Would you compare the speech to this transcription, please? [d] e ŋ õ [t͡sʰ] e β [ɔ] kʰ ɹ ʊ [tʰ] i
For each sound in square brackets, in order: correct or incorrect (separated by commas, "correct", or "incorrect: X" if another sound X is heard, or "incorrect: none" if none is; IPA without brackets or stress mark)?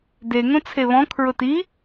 correct, correct, incorrect: ɔ̃, incorrect: t